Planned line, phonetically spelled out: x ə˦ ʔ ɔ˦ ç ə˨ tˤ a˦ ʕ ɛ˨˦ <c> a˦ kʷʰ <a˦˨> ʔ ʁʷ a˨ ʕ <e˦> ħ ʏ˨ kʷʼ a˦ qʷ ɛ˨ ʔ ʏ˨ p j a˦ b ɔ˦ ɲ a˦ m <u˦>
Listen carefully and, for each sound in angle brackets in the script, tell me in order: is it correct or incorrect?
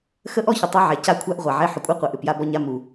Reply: correct, incorrect: a˦, correct, incorrect: u˨

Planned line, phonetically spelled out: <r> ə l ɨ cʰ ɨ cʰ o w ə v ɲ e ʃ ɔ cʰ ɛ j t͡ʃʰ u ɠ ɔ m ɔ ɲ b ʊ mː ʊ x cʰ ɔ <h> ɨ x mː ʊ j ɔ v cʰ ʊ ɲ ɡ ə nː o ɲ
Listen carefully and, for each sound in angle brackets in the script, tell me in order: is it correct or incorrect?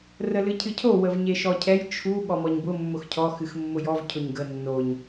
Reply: correct, incorrect: x

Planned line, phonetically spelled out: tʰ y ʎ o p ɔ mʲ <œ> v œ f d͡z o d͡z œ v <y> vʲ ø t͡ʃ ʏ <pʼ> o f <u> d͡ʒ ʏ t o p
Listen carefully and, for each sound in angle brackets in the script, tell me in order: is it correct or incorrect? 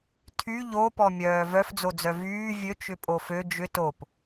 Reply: incorrect: œː, incorrect: yː, correct, incorrect: ø

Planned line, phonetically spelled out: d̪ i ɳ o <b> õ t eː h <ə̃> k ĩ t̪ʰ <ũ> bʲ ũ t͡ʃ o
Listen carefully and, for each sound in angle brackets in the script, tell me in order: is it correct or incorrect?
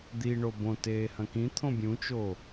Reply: correct, incorrect: ɐ̃, incorrect: õ

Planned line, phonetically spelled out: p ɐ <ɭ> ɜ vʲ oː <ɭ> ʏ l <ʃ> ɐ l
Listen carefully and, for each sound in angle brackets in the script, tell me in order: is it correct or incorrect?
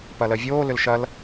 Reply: incorrect: l, incorrect: l, correct

